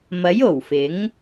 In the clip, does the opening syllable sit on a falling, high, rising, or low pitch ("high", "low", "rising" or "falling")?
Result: rising